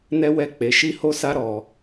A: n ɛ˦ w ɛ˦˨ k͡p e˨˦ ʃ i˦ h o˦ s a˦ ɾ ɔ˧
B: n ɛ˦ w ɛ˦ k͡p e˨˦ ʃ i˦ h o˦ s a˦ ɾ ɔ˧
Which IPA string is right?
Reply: A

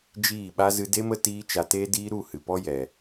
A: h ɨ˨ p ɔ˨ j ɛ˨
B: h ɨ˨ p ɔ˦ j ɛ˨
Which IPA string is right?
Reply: B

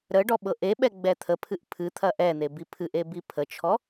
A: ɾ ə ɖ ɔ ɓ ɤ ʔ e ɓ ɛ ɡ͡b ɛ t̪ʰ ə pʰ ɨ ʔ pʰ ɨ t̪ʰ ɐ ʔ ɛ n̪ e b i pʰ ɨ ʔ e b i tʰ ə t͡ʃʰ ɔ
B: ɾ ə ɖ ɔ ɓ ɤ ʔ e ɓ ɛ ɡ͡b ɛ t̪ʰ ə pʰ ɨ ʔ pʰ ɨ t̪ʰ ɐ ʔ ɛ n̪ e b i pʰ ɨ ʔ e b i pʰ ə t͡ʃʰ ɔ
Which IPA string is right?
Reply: B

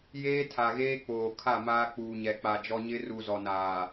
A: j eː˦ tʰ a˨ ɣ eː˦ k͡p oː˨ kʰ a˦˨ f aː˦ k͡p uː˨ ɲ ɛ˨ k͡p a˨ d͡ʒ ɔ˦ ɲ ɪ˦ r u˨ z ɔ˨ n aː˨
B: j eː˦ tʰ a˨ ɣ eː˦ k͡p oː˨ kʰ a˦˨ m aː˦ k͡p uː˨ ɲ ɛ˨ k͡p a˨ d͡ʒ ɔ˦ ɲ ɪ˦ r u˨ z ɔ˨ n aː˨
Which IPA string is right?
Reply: B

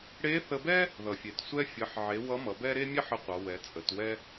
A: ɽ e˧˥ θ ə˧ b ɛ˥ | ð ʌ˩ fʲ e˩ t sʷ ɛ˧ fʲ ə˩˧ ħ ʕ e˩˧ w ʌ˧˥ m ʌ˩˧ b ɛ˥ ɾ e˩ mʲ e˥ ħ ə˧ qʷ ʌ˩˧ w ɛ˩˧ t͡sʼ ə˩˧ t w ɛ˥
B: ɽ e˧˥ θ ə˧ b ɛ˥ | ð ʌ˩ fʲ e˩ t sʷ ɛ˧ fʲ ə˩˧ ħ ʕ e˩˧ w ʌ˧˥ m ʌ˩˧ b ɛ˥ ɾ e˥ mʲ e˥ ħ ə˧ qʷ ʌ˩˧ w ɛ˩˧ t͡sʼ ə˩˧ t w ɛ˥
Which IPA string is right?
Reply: B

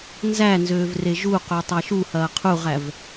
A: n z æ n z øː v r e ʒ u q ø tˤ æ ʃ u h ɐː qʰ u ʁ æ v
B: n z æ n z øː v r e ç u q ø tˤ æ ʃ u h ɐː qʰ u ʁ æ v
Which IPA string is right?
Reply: A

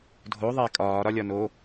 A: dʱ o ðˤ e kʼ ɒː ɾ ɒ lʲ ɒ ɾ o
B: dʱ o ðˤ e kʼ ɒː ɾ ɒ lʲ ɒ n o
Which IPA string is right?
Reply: B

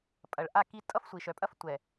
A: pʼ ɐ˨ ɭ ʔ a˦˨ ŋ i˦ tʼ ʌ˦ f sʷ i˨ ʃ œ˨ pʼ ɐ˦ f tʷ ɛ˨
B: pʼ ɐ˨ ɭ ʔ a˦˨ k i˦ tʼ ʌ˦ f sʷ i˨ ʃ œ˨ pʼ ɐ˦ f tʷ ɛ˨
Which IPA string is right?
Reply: B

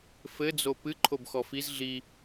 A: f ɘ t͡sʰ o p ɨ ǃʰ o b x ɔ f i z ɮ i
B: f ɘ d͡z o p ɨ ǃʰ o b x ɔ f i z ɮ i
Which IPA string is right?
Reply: B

